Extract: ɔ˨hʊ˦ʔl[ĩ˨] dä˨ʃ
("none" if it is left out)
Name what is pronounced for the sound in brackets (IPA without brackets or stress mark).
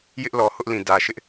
ĩ˨